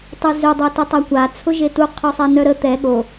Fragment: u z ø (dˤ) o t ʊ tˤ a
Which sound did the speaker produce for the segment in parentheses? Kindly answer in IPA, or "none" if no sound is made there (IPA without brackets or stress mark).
dˤ